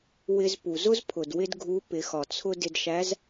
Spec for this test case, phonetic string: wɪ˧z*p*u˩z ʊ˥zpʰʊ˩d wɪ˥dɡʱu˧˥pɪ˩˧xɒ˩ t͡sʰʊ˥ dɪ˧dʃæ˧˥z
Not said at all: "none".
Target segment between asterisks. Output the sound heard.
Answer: p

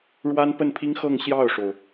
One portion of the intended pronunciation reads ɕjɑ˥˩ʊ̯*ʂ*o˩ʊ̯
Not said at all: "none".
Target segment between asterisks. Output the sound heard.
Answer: ʂ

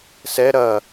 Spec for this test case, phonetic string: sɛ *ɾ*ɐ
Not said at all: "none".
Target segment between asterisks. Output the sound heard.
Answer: ɾ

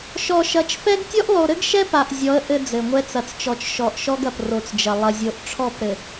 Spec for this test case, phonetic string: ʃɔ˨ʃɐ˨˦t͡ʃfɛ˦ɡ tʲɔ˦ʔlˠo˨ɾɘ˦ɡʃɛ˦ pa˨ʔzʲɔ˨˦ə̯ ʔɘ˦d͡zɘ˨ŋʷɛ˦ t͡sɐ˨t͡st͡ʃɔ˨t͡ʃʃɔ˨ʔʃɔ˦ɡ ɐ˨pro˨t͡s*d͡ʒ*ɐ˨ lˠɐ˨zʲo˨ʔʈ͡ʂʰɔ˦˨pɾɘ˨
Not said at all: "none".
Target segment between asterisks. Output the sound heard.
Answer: d͡ʒ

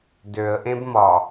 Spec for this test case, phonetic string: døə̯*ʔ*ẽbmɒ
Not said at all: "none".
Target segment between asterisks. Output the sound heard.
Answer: ʔ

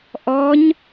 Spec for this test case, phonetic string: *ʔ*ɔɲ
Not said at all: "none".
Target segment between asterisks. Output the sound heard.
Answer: ʔ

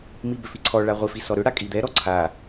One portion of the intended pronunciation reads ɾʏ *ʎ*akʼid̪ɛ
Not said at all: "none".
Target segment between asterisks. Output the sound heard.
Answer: ɽ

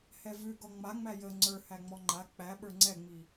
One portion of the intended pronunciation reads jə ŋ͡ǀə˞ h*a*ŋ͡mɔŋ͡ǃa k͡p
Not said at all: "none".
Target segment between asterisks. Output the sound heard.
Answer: æ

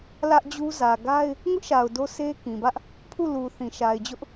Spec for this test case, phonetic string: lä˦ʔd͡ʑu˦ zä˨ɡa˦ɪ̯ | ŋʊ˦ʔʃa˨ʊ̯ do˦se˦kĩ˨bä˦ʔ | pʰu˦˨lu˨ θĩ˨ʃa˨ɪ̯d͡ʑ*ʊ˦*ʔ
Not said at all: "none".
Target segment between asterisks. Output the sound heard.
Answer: ʊ˦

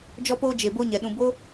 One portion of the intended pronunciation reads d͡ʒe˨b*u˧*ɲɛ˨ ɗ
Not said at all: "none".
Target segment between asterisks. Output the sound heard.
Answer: o˧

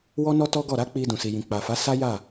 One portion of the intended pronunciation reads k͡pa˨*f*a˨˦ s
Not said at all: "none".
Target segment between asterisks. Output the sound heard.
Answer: f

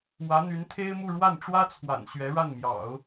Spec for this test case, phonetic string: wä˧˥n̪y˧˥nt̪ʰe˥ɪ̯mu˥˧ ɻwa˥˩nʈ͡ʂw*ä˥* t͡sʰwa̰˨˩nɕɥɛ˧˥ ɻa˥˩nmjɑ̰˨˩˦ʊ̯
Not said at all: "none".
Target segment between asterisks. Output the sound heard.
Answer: ä˥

